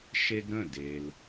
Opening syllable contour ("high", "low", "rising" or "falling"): high